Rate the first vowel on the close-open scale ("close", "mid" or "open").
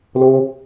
mid